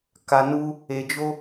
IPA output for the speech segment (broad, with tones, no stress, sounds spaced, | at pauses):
k a˨ n u˧ | e˨ d͡ʒ o˧